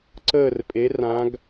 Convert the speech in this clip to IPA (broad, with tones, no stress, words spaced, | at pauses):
ǀəː˦˨rpʼe˨˦ rã˨˦ɡ